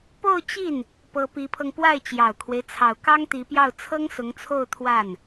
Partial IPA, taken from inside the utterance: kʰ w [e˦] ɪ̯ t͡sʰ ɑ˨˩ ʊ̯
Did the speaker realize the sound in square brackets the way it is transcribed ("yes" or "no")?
yes